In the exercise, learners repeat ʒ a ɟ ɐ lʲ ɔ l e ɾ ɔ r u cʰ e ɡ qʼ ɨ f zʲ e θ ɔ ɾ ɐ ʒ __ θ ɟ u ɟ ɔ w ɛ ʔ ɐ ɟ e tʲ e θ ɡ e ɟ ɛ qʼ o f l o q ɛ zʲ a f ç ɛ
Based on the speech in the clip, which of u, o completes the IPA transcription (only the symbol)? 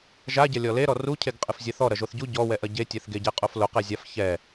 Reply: o